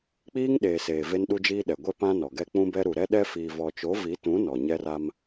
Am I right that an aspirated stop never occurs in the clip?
yes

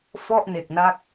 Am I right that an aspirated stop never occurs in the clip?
yes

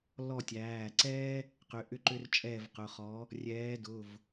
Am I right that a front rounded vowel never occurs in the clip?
no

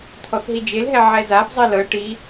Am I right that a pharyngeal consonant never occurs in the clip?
no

